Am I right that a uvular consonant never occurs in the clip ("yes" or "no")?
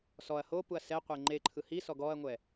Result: no